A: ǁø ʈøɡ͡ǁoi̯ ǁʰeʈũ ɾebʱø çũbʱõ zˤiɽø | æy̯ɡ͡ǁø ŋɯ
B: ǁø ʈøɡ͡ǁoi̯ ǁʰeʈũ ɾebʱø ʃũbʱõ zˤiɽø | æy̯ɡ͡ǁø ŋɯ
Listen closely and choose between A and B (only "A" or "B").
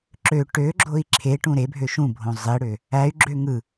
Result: B